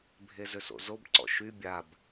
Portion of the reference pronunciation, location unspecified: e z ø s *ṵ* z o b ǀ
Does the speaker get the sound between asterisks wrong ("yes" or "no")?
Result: yes